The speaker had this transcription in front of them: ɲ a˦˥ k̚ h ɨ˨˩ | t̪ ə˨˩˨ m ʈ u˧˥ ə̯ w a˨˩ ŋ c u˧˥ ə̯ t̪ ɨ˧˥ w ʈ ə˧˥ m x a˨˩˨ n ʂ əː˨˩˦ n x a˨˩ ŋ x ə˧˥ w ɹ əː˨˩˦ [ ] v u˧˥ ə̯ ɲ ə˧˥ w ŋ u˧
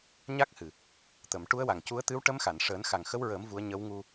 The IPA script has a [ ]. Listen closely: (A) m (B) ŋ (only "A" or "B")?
A